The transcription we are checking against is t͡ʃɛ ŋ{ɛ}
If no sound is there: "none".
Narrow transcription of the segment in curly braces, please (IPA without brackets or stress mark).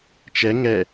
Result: ɛ